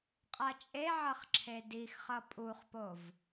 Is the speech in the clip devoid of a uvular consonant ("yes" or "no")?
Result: no